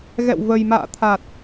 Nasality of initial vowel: oral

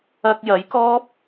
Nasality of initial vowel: oral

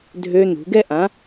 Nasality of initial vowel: oral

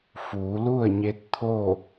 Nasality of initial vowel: oral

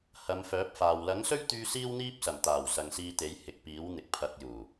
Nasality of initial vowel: oral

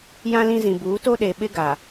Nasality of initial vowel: nasal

